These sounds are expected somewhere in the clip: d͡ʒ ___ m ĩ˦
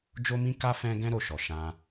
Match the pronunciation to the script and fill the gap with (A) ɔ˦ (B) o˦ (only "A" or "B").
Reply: B